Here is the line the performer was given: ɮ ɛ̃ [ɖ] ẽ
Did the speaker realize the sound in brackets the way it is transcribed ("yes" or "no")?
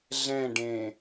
yes